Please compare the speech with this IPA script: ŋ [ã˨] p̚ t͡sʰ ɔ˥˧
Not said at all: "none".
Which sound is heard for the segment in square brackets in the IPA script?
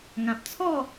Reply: ã˨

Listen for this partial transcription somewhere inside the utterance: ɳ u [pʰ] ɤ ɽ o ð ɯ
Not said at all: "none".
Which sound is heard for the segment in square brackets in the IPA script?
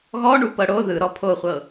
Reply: p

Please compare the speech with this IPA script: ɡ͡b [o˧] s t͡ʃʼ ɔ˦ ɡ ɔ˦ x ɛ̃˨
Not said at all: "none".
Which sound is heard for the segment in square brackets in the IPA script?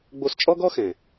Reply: o˧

